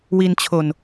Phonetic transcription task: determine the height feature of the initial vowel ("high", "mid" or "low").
high